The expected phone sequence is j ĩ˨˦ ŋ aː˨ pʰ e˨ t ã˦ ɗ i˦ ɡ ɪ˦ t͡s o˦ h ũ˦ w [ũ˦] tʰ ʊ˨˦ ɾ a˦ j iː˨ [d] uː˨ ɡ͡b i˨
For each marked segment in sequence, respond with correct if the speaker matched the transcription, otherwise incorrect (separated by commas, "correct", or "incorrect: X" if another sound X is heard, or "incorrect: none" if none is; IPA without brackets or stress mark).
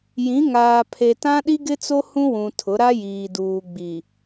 incorrect: ũ˨, correct